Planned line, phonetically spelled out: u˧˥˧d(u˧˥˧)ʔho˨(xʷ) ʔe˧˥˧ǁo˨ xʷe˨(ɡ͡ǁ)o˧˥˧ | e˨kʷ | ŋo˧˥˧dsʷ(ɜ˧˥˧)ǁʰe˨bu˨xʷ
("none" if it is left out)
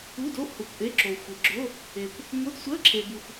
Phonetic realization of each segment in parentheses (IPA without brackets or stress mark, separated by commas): o˧˥˧, kʷ, ɡ͡ǁ, ɜ˧˥˧